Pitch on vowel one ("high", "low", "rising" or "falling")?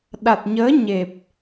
low